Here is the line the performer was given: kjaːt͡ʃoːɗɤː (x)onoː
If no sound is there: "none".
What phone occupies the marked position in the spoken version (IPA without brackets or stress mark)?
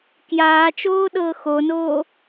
x